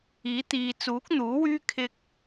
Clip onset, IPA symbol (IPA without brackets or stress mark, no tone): iː